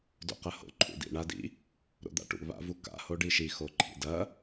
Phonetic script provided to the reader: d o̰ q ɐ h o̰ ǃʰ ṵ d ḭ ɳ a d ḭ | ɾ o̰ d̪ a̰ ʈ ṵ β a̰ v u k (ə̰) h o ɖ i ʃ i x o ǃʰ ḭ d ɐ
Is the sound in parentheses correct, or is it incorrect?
incorrect